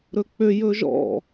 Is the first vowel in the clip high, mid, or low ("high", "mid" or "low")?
mid